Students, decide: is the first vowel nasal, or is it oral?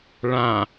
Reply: nasal